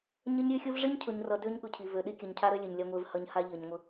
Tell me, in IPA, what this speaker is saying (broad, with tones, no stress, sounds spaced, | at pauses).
ɲ ə˦ ɲ ɾʲ ø˦ xʲ u˦ v ʐ i˦ ɲ cʰ ʊ˨ ɲ r ʌ˨ d ø˦ ɲ ɠ ʊ˨ cʰ i˨ v ø˨ ɗ i˦ kʲ ʌ˨˦ ɲ cʰ a˦ ɾ ø˦ lʲ ø˨ ɲ lʲ a˦ ŋʷ e˦ v h ʌ˦ ɲ h a˦ ʎ ʌ˨ ɲ ŋʷ ə˦